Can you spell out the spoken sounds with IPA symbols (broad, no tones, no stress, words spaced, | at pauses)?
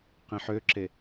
qĩħøǁe